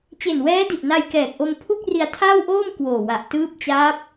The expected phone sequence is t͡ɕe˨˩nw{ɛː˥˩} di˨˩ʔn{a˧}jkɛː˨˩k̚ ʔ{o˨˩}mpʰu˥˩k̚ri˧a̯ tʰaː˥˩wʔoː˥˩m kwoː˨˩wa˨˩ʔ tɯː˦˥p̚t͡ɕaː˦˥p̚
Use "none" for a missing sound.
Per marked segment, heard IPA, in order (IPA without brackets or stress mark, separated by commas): ɛː˦˥, a˧, o˧